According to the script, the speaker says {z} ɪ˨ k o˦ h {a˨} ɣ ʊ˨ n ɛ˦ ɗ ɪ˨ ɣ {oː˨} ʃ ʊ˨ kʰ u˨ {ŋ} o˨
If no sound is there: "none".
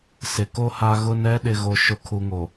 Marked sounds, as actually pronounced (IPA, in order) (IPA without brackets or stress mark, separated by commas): s, a˨, o˨, ŋ